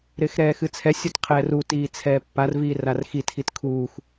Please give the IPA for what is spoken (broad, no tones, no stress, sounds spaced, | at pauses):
ɾ ɪː x ɾ ɛː x ɨ t͡sʰ ɛ sʲ ɔ t qʰ ɛː r uː t iː t͡sʰ ɛː pː a r v iː r a r x i tʰ i t kʰ uː x